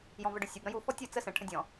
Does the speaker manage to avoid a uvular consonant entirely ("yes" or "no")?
yes